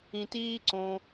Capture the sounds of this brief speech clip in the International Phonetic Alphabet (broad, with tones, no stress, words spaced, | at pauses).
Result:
ĩ˩tiː˧ǀõ˩